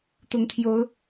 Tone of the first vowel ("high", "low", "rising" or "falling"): rising